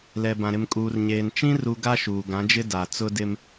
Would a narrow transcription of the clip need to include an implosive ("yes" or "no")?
no